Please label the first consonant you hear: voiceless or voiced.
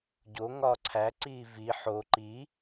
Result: voiced